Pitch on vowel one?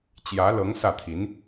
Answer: rising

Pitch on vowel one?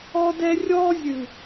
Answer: high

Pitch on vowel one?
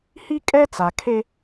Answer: high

